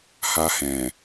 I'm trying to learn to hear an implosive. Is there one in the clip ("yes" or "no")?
no